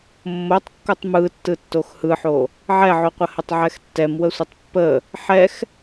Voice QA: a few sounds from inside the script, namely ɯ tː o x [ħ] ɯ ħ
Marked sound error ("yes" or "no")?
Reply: yes